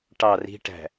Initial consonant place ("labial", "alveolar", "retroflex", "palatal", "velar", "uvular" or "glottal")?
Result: retroflex